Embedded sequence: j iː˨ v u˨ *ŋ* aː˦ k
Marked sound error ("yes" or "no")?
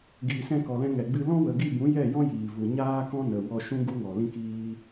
yes